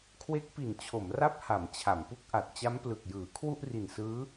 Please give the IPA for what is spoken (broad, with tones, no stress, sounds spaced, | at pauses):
kʰ w e˦˥ k̚ p i˨˩ n t͡ɕʰ o˩˦ m r a˦˥ p̚ h a˩˦ m t͡ɕʰ a˩˦ m p u˦˥ k̚ ʔ a˨˩ t̚ t͡ɕ a˦˥ m p l ɯ˨˩ k̚ j ɯː˩˦ kʰ w u˥˩ ʔ r i˨˩ n s ɯː˦˥